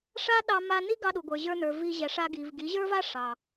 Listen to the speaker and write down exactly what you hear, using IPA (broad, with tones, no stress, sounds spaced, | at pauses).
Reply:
ʂ a˦ ɗ ɑ˧ m a˧ n i˦ ɡ ɑ˧ ɗ u˨ ɡʷ ə˞˨ ʑ ə˞˧ n ə˞˨ v i˧ ʑ ɛ˨ ʂ a˧ ɡ i˨ v ɡ i˨˦ ʑ ə˞˦ v a˦ ʂ ɑ˨